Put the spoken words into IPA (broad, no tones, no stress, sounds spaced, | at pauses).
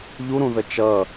ʎ u ɾ ũ ð ə t͡ʃ ʌ